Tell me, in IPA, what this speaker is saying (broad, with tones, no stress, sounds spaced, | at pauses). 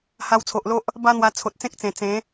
h a˧ w t͡sʰ o˨ ʔ l o˦ ʔ | b a˦ n̪ w a˧ t͡sʰ o˨ t̚ t͡s ẽ˦ k̚ t͡s ẽ˨˩ t͡s ẽ˨˦